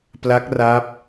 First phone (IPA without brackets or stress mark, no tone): p